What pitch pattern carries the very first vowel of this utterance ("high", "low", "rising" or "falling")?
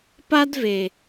high